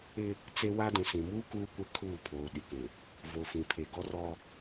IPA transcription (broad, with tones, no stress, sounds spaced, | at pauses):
ɪ˦ | t͡s e˦ w a˦ d ũ˨ s ĩ˨ m uː˦ k uː˦ kʷ ɛ˦ kʰ uː˦˨ pʰ oː˨ ɗ i˨ k ũ˨ | v o˨ f ĩ˨ pʰ e˨ ɡ ɔ˦ r ɔ˦